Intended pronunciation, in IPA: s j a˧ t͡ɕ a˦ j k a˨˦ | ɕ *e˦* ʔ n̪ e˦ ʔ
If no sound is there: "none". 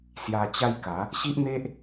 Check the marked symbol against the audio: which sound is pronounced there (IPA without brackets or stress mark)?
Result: i˦